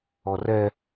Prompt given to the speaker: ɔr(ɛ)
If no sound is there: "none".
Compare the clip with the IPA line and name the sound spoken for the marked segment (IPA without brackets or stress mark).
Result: ɛ